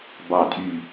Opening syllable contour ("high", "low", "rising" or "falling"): low